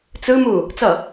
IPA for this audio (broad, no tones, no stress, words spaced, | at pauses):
t͡sɯ mu | t͡sʌ